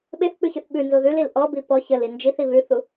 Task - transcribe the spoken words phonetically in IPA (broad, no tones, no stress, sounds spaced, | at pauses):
ɓ e θ k͡p ʉ ç ʉ θ ɓ ʉ n z o ð ʉ l i l ʔ ɔ b i p ɔ ç ə l i n d͡ʒ i θ i β ʉ θ u